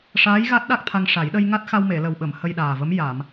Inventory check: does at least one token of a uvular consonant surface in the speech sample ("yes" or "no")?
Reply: no